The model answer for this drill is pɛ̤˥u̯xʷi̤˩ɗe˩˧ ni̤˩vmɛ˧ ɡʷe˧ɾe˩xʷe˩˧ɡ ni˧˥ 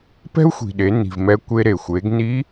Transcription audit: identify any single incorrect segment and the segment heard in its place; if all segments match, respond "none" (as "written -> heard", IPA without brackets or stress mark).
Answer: ɡʷ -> kʷ